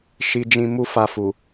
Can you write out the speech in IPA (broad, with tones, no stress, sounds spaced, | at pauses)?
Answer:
ʃ i˧ d͡ʒ ĩ˧ m u˦ f a˧ f u˨